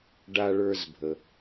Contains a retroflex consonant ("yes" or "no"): yes